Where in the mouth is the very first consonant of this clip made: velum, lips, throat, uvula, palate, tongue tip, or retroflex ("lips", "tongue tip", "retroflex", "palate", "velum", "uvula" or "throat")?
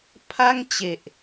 lips